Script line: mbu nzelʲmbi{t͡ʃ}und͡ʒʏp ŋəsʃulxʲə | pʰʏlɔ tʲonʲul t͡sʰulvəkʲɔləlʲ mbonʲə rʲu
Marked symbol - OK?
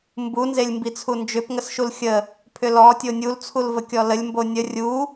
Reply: no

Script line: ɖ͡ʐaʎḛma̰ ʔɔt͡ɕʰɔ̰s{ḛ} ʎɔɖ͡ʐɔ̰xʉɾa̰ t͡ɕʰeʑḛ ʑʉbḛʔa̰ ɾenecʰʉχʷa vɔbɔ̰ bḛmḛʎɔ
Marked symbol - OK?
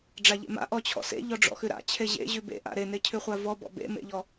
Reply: yes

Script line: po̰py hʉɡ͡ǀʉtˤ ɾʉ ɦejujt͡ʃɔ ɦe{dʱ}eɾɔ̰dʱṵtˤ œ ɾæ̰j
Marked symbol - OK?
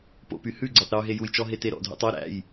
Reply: no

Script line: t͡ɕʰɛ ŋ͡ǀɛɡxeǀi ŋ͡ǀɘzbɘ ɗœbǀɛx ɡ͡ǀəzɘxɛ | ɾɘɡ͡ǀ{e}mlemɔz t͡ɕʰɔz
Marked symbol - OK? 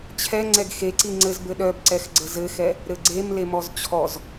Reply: yes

